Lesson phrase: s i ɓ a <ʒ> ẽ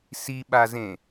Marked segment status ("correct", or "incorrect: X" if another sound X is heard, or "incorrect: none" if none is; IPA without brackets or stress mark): incorrect: z